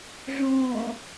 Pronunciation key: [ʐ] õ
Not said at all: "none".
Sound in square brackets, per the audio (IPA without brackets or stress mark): ʐ